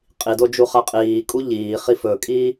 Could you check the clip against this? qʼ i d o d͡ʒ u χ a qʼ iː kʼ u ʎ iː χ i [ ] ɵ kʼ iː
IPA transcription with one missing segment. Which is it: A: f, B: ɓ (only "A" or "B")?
A